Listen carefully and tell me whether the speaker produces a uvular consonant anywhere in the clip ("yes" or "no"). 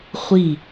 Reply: yes